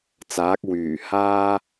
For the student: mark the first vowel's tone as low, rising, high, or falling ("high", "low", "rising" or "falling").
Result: rising